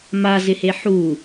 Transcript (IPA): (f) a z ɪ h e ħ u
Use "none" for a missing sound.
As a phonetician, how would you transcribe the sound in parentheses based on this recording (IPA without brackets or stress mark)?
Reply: m